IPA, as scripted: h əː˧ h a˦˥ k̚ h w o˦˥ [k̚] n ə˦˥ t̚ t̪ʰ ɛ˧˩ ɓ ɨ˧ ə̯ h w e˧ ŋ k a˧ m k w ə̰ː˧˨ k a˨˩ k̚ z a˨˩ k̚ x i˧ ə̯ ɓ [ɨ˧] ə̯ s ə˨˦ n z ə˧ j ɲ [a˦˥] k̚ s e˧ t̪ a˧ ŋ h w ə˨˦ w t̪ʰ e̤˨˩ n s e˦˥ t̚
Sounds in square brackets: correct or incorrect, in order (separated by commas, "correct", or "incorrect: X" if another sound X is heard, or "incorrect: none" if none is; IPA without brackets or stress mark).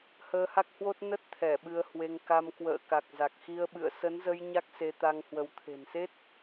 incorrect: t̚, incorrect: ɨ̰˧˨, correct